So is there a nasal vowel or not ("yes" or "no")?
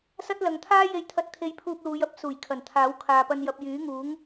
no